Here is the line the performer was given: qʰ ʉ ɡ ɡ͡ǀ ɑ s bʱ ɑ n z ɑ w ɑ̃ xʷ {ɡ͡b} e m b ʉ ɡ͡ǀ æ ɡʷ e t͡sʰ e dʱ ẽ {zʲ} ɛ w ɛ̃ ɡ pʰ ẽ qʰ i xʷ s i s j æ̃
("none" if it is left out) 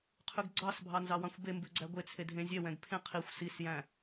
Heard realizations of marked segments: b, zʲ

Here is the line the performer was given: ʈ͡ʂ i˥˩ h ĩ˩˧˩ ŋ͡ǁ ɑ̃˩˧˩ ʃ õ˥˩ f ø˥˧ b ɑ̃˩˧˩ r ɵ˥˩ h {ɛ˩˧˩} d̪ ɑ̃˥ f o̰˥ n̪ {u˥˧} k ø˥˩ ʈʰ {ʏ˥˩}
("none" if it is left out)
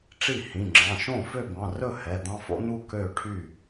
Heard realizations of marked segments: ɛ˩˧˩, u˥˧, y˥˩

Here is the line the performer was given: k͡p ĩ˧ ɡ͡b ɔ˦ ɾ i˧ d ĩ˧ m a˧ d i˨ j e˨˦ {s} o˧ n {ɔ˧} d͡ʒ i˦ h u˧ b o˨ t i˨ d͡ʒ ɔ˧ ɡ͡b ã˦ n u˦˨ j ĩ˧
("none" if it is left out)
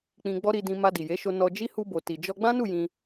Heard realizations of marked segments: ʃ, ɔ˧

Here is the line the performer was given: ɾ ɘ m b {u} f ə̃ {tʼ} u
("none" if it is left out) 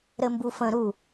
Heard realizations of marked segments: u, ɾ

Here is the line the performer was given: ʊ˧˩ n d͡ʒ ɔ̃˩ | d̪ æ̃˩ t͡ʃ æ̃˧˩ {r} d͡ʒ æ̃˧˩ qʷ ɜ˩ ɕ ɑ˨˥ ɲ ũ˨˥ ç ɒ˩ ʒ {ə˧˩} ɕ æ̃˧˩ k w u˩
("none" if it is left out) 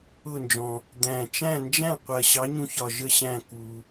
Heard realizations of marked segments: n, ə˧˩

